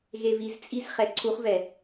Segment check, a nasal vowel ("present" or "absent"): absent